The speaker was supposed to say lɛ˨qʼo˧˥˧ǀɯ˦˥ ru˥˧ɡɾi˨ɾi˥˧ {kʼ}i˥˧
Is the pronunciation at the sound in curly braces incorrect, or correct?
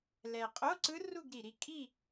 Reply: correct